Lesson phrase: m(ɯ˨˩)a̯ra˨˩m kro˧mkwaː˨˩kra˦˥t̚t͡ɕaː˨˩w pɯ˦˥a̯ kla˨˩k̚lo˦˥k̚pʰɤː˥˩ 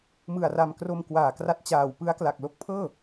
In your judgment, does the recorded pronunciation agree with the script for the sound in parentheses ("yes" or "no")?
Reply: yes